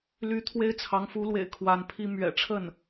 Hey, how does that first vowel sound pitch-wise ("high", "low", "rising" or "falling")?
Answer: rising